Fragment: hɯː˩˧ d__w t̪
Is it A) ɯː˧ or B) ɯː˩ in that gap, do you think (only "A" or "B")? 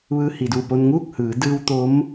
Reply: A